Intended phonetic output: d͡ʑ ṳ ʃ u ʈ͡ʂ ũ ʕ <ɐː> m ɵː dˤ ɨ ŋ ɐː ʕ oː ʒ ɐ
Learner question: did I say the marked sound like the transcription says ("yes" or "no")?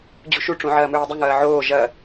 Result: yes